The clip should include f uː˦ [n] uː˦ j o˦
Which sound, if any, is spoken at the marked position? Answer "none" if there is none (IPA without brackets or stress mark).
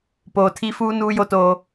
n